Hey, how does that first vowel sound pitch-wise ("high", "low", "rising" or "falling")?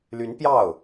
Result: rising